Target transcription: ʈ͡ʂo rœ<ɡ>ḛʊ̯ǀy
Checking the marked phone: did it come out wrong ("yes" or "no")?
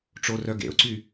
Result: no